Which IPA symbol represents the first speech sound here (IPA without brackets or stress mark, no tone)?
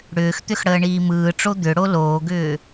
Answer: ɽ